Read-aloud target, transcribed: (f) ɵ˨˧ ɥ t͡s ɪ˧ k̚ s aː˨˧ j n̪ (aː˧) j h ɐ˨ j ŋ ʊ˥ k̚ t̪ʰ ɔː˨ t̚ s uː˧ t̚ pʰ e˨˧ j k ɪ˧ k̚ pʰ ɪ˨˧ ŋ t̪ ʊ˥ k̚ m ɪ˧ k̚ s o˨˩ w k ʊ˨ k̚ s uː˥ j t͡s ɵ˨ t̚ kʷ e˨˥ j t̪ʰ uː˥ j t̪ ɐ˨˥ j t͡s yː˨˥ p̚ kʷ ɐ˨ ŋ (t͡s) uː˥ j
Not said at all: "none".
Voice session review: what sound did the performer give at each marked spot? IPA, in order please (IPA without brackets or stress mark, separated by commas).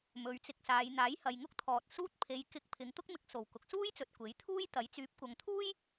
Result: m, aː˨˥, t̪ʰ